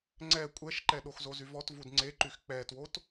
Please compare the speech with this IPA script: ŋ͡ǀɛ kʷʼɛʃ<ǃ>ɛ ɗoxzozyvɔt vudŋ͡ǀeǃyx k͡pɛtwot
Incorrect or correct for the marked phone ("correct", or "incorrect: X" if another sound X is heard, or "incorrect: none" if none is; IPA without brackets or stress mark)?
correct